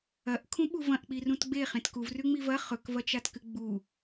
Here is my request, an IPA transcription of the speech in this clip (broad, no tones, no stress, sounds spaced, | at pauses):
ɐ ʔ kʰ ũ ɓ u v ɐ̃ ʔ k͡p i r ũ t ɡ͡b e χ ẽ t k u v r ʉ ŋ͡m i v ɐ χ ɵ k v ɐ t͡ʃ a t k ɨ ɡ͡b u